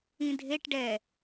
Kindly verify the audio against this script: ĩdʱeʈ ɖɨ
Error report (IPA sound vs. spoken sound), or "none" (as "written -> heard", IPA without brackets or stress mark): ɨ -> ɛ